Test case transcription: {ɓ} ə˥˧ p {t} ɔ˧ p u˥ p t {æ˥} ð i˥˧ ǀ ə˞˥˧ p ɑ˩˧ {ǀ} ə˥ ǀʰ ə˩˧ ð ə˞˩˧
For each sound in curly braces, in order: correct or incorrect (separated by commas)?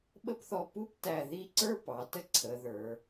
correct, incorrect, incorrect, incorrect